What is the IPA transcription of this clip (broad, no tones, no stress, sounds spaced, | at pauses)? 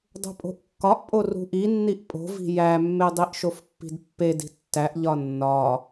dˤ o̤ pʼ o̤ ʔ kː ɒ ʔ pʼ o r ṳ ʔ i nː i ʔ pʼ o̤ v i̤ j æ mː e dˤ i ʔ ʃ o f pː i̤ d pː e d i̤ tː æ ʔ ʎ ɒ nː ɒ